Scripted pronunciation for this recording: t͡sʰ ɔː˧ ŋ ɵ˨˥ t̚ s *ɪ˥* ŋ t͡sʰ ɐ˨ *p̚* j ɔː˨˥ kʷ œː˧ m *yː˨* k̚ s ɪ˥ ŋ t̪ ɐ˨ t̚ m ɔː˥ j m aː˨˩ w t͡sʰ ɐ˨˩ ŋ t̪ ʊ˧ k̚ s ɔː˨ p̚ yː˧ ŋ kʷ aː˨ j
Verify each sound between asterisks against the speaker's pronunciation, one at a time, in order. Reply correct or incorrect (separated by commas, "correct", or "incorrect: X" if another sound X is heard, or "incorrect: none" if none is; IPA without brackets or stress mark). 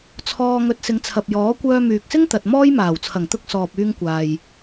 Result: incorrect: ɪ˨˧, correct, correct